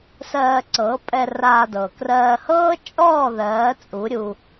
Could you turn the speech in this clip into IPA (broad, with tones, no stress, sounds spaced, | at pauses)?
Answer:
s ɜː˧ ǀ ɤ˨˦ pʼ ɛ˧ r aː˧ d ɤ˨ k r ɜː˧ h ɤː˦ t͡ʃʼ ɔː˦˨ ð ɜː˨˦ t͡sʼ u˨˦ ɾʲ u˧